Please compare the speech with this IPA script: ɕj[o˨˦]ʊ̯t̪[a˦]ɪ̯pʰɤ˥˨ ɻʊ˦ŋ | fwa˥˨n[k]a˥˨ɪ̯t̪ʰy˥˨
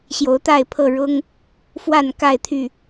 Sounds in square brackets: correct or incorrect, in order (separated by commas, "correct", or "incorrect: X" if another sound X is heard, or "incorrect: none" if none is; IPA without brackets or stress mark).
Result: correct, incorrect: a˥˨, correct